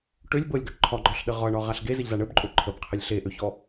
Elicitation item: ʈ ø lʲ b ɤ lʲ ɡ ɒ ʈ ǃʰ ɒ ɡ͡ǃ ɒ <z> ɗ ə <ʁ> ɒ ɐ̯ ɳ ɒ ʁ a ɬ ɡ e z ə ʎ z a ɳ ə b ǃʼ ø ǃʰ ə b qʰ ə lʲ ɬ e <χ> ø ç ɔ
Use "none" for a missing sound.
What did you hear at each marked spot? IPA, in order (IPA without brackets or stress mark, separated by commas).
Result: ɬ, ʁ, ʔ